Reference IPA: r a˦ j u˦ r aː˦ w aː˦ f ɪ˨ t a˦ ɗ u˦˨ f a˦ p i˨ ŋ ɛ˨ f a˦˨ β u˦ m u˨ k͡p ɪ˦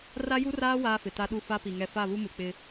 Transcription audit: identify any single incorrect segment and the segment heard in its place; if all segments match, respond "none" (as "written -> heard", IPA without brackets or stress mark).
none